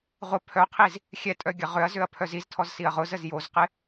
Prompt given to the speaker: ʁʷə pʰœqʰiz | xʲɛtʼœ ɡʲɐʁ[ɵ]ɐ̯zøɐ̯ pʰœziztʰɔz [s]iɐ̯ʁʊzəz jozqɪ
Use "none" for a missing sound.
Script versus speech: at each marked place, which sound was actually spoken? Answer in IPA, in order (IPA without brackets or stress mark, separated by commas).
ø, s